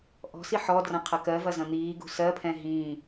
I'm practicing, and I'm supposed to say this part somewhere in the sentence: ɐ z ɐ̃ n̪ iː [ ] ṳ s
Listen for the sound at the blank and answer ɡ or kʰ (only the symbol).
ɡ